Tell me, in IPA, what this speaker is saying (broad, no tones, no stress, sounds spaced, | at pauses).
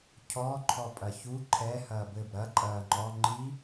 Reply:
cʰ ɔ ǃʰ ɔ pʼ ɐ ç u ǃʰ ɛ h ɐː b ɘ b ɾ ɐ ǃʼ ɐː ŋ͡ǃ ɔ ŋ͡ǃ i